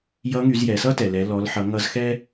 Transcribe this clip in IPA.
j ʌ˧˥ ŋ y˩˧ z j ɛ˩˧ s ʌ˥ t ɛ˩ l ɛ˩˧ l ɔ˩˧ l ħ ʌ˩˧ ŋ ʌ˧ z x ɛ˥

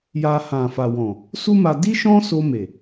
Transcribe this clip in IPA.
j a˧ h ã˨ f a˨ w ɔ̃˨ | s u˦ m a˧ d i˦ ʃ ɔ̃˦ s o˧ m e˨

